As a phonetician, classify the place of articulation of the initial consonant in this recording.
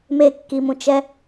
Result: labial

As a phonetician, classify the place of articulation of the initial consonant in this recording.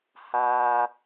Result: glottal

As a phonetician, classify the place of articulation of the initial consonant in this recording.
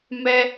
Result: labial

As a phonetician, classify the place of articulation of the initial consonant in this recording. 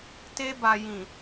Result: alveolar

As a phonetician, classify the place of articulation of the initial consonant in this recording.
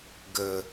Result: velar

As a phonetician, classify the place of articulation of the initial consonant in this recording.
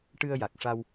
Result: retroflex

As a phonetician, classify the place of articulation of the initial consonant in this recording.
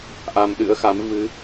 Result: glottal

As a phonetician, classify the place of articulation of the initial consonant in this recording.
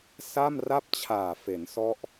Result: alveolar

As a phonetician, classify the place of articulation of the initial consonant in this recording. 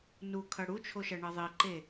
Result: alveolar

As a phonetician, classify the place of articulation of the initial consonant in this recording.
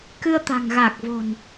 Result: velar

